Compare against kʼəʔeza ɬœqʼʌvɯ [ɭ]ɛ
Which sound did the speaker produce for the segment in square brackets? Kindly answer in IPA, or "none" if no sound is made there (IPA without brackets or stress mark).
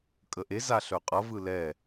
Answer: l